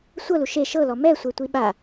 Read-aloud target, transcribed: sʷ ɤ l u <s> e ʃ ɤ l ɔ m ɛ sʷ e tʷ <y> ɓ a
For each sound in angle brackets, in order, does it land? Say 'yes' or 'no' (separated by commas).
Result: no, no